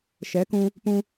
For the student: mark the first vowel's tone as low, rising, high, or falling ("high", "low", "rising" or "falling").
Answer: rising